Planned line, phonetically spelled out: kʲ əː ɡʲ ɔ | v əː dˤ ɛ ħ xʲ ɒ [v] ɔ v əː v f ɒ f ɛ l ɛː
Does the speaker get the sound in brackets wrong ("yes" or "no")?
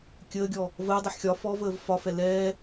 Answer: yes